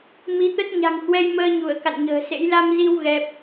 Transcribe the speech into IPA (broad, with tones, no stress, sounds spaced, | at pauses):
m i˨˦ t̪ ə˦˥ t̚ ɲ a̤˨˩ ŋ h w ɛ˧ j m əː˧ ɲ u˧˩ ə̯ k a̰˧˨ n ɲ ə̤ː˨˩ s ḛ˧˥ j l a˧ m z i˧ w ɣ ɛ˦˥ p̚